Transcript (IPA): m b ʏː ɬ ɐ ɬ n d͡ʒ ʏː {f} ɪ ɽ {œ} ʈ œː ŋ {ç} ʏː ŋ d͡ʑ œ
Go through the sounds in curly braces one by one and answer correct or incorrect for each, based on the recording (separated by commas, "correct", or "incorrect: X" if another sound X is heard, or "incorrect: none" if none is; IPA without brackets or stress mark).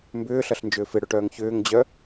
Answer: correct, incorrect: ø, correct